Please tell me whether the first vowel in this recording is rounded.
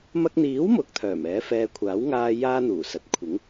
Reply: no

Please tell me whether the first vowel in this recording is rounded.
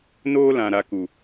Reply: yes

